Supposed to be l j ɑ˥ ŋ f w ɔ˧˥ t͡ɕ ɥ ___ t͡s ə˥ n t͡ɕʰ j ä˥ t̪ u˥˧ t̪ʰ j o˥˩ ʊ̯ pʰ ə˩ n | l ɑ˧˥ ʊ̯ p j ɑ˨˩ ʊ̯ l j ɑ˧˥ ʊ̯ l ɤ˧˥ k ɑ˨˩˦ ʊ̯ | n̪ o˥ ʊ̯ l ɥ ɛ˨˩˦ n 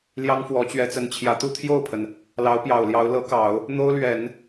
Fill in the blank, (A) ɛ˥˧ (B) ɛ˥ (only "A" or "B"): B